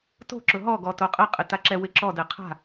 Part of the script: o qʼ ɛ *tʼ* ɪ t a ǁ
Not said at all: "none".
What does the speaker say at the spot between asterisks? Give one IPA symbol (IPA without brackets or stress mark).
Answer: qʼ